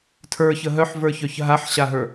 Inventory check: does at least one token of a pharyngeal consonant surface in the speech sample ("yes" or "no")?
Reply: yes